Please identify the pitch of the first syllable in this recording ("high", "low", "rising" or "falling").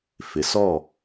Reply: low